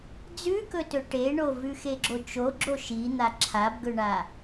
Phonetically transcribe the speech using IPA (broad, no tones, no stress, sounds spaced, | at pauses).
d͡z ʉ k ɵ t ɵ ʈ e ɳ o v ʉ x e ɡ͡ǁ o t͡ʃ o ɡ͡ǁ o ʃ i n̪ a ǁʰ a b ɡ ɵ ɳ a